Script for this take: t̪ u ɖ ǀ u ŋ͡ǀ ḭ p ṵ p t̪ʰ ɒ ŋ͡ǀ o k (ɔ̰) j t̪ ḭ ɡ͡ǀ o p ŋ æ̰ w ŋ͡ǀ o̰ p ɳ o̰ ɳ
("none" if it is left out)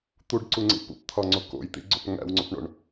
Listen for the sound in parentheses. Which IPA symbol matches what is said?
o̰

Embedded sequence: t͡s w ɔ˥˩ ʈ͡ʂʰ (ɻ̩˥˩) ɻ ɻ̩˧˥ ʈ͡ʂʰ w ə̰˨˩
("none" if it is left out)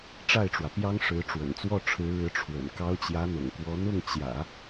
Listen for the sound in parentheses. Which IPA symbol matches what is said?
ɻ̩˧˥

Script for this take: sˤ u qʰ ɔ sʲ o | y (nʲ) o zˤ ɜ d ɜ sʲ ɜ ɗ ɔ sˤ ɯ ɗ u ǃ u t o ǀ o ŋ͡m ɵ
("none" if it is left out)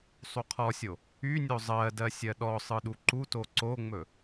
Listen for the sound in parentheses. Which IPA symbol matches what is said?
nʲ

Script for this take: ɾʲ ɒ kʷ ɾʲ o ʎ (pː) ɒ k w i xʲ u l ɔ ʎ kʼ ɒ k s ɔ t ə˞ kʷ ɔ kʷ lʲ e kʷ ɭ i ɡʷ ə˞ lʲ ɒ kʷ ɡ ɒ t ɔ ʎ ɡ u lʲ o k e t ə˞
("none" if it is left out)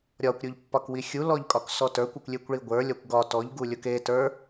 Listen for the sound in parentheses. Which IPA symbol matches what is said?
pː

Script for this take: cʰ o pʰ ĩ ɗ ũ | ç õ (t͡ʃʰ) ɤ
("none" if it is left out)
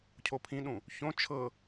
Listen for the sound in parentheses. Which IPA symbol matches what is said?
t͡ʃʰ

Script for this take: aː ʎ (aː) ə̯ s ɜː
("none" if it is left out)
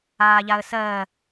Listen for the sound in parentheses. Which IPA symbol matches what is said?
a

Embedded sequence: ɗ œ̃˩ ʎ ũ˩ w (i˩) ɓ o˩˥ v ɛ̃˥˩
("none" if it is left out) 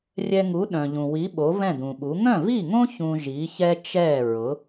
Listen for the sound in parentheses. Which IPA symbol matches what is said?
i˩˥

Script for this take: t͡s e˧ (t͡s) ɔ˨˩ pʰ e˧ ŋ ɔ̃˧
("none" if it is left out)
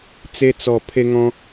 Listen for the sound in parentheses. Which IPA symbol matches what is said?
t͡s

